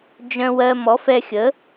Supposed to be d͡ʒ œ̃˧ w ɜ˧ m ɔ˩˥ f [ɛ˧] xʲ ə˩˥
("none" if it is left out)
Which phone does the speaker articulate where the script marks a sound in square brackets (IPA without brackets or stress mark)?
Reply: ɛ˧